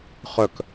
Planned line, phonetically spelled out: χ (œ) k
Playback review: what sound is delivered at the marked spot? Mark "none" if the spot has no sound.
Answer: œ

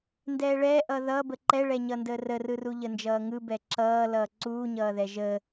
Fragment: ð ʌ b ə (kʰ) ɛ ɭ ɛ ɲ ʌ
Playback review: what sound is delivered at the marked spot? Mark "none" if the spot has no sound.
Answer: ǃ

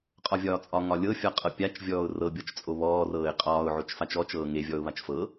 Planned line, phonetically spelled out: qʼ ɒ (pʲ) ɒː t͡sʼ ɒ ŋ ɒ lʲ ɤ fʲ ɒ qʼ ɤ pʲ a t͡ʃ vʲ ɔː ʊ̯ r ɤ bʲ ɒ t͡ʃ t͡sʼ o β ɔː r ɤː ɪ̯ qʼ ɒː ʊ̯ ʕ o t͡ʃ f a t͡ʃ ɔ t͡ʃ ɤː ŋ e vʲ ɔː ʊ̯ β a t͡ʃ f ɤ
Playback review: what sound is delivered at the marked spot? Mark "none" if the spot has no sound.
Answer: vʲ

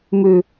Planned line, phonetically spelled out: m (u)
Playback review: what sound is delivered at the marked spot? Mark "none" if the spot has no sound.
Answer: ʉ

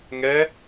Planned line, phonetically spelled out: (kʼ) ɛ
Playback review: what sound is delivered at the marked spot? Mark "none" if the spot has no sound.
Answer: ŋ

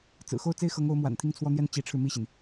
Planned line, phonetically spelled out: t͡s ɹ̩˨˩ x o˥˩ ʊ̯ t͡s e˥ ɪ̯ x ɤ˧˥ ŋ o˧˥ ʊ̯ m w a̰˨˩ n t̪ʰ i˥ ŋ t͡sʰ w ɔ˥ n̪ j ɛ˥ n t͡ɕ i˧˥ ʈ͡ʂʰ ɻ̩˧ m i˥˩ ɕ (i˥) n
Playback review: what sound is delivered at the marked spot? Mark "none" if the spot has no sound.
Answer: i˩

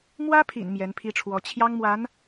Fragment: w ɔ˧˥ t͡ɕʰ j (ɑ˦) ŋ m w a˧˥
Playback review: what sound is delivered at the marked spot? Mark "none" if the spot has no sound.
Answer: ɑ˥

